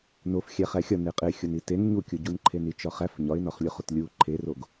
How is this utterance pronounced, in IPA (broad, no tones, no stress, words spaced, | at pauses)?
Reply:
nofxʲæχæ xʲɒne qʼe xʲoniten ɲukʲoɟun ǃʰenit͡ʃɒχæf ɲɒɪ̯nɒχlʲoχot lʲu ǃʰeroɡ